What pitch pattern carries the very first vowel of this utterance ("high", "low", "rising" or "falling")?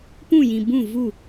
falling